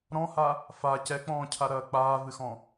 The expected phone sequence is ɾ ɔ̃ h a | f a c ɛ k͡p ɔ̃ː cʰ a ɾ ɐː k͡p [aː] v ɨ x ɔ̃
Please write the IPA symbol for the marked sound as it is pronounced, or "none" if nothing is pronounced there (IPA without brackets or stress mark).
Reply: aː